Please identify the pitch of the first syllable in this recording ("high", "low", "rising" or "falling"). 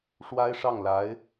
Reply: high